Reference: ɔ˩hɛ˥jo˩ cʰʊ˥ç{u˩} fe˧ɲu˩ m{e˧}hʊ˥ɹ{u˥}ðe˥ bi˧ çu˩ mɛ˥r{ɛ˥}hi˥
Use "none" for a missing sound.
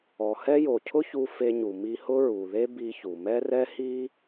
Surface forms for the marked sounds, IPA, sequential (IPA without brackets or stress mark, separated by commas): u˧, i˧, u˩, ɛ˥